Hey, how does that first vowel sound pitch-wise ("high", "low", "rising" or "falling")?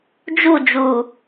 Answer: falling